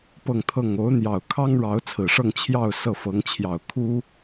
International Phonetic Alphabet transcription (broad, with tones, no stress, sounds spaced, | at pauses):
p ɤ˥˧ ŋ t̪ʰ ɤ˥˩ ŋ o˧˥ ʊ̯ n̪ j ɑ˨˩ ʊ̯ kʰ ɑ˥ ŋ ɻ ɑ˧˥ ʊ̯ t͡sʰ ɹ̩˨˩ ʂ ɤ˥˧ ŋ t͡ɕʰ j ɑ˥˧ ʊ̯ s ɤ˥˩ f ɤ˧˥ ŋ t͡ɕʰ j ɑ˨˩ ʊ̯ kʰ u˥